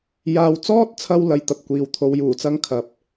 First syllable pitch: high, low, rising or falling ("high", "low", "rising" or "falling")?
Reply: low